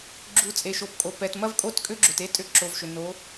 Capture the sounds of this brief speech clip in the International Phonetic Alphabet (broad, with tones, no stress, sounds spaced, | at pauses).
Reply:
ɡ͡ǁ u˩˧ t͡sʼ e˩ ʃ o˩ p kʼ o˩ p ɛ˩ t m ɐ˥ v kʼ o˥ t kʼ ʏ˥ ɡ͡ǁ ʏ˩ t e˥˧ tʼ ʏ˥˧ ǁ o˩˧ v ʃ ʏ˩ n o˩˧